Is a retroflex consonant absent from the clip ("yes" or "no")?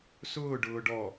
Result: no